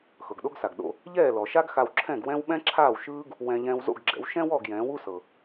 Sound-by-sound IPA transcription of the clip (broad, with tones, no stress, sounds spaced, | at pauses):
x ɤ˩ ɡ ɗ o˥ ɡ s a˩ ɡ ɗ o̰˧ | ʎ ɛː˥˩ l ɔ˩ ʃ a˥ ɡ x a˧ w ǁʰ ɛ̃˥˩ ɡ w ɛ̃˥ w ɓ ɛ̃˥ ǁʰ aː˥˩ w ʃ ɯː˥ ɡ | w ɛ̃˧ ʎ ɛ̃ː˧ w z o̰˥˩ ɡ ɡ͡ǁ ɛ̰˩˥ w ʃ ɛ̃˥ w ɔ˥˩ ɡ j ɛ̃ː˩˥ w u˥ s ɤ˩